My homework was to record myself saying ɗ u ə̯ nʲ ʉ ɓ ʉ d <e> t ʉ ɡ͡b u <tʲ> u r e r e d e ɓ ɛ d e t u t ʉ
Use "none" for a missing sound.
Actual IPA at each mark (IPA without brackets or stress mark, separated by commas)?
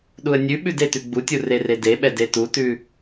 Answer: e, tʲ